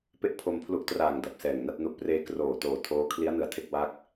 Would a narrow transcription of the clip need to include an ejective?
no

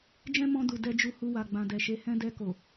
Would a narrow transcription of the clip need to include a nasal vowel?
yes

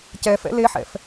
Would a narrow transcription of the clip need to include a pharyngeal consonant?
yes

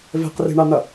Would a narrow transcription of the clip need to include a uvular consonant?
yes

